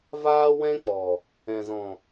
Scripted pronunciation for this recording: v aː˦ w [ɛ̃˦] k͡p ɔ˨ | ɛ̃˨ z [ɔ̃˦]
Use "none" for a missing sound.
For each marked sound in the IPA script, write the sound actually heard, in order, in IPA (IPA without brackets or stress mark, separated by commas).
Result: ɛ̃˦, ɔ̃˨